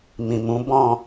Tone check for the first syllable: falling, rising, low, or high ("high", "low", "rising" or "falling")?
low